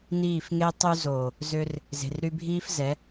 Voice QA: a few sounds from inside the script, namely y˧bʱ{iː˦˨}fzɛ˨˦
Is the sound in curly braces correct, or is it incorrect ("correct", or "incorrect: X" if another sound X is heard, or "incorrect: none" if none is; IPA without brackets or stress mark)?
incorrect: iː˦